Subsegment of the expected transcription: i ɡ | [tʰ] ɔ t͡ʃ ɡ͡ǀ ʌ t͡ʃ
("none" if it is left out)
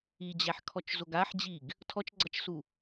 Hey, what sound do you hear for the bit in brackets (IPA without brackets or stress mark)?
tʰ